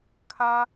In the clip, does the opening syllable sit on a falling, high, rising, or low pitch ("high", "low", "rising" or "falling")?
high